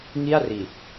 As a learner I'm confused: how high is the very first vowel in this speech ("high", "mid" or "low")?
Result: high